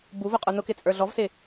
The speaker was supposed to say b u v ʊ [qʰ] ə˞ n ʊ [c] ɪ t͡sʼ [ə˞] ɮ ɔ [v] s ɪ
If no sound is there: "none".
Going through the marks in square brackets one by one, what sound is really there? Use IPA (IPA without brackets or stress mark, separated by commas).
qʼ, k, ə˞, v